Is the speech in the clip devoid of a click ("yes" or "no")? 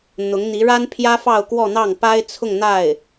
yes